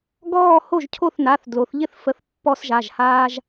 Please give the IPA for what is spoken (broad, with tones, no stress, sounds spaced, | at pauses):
ɡ ɔː˥˧ h o˥˩ ʒ cʰ o˥˩ θ n a˩˧˩ θ d l o˩˧ θ ʎ ɪ˥˩ θ f ə˩˥ θ pː ɔ˧ s ʒ a˩˧˩ ʒ h aː˧ ʒ